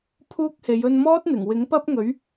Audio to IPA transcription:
pʰ uː˥ k̚ h e˨˧ j ɵ˧ n m ɔː˥ t̚ n̪ ɪ˨˩ ŋ w ɪ˨˥ ŋ p ɐ˥ p̚ ŋ ɵ˨˥ ɥ

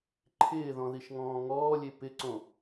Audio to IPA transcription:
ǃʰ ɪː ð ɔ̃ ð i ʃ ŋ ɔ̃ː ŋ ɔː lʲ e p ɪ ǀ õ

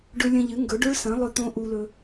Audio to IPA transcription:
ɖ ɵ˧ lʲ ɐ̃˧ ʎ ɨ˩˥ ŋ ɡ ɵ˩˥ ɖ ɵ˧˥ ɭ s ɐ̃˩˥ lˠ ɵ˧˥ t̪ õ˧˥ ʔ u˧ l ɵ˧

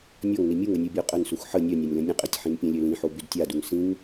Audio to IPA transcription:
nʲ ɔ ŋ n i mʲ u ŋ ə nʲ u bʲ ɔ qʼ ə n s u x ħ ə nʲ œ nʲ a nʲ l ə̃ nʲ ə̃ qʼ ɛ tʲ ħ ĩ n pʲ ə̃ lʲ ø l ĩ ħ o b y d tʲ a d u ŋ s ĩ ŋ

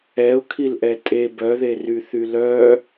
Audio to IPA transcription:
ɛ ʊ̯ kʰ i l ʔ ɛ tʼ e b œ ð e r y θ y l œ

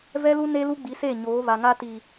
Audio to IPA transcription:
v ɛ˦ l u˦ n e˦ l u˦ ɡ͡b i˨˦ s e˦˨ ɲ oː˨˦ β a˨ ŋ a˦ t i˨

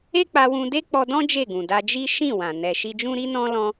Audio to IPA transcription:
e˦ k͡p a˧ w ũ˧ d e˦ k͡p ɔ˧ d ɔ̃˦ d͡ʒ e˦˨ ɡ ũ˨ d a˧ d͡ʒ i˦ ʃ ĩ˦˨ w ã˨ n ɛ˨ ʃ i˧ d͡ʒ ũ˦ ɾ i˦ n ɔ̃˦ l ɔ̃˦

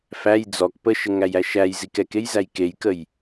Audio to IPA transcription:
f æ j d͡z ɔ k p ə ʃ ə ŋ æ j æ ʃ æ j z i k ɛ k e j z æ j k e j k ə j

